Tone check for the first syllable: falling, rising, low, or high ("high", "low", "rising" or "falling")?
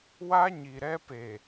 high